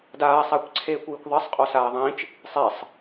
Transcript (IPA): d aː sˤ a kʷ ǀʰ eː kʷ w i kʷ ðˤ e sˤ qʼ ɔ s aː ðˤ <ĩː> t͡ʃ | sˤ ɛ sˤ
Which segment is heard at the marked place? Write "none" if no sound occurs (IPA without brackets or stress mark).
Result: ĩː